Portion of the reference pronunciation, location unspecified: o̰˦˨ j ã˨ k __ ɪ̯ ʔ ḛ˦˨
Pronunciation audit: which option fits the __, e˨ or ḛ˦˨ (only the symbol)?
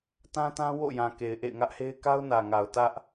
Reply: e˨